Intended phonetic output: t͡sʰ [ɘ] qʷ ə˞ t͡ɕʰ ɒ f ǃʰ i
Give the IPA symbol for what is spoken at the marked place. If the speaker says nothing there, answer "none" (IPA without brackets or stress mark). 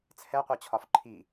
ɛ